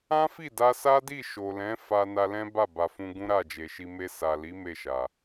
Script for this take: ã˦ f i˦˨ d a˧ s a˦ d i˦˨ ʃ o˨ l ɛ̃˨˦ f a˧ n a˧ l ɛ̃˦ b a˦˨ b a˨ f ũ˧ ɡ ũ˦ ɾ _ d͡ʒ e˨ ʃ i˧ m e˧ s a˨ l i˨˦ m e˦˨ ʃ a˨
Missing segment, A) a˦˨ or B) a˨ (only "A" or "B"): A